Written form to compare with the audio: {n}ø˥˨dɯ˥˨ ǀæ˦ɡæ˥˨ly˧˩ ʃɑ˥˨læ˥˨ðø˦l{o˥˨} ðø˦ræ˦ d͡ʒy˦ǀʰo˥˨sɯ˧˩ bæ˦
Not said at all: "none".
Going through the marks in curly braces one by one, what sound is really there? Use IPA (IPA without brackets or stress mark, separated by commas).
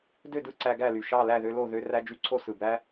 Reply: d, o˥˨